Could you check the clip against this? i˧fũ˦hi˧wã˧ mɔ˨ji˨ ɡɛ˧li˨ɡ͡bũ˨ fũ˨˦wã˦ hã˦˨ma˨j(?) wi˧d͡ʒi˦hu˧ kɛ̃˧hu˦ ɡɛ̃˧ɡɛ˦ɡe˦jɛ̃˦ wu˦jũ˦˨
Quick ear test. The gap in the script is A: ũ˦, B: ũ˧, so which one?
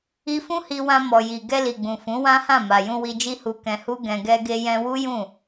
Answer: B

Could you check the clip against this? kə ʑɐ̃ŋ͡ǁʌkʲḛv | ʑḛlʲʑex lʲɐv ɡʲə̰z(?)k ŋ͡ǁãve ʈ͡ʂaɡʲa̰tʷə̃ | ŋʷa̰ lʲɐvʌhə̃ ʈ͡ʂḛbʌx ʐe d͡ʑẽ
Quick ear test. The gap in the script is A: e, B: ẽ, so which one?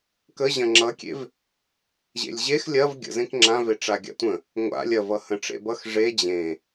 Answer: B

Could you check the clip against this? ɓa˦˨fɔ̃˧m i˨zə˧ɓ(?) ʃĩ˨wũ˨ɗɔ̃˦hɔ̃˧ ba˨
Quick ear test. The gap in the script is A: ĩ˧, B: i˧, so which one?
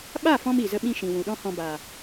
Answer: A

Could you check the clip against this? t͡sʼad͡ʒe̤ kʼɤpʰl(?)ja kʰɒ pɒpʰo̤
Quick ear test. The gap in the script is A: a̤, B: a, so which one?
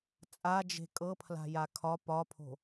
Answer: A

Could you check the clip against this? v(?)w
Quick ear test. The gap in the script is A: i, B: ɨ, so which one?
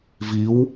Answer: A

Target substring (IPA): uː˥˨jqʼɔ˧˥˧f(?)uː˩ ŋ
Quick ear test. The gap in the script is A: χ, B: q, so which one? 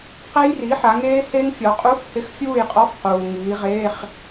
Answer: B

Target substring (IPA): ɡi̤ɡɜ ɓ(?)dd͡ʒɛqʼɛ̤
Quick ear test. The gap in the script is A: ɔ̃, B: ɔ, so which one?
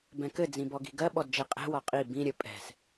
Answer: B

